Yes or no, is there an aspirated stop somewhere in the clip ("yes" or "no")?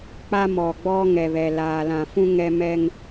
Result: no